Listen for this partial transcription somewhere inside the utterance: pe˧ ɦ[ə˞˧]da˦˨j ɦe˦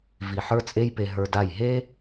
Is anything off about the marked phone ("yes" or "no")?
no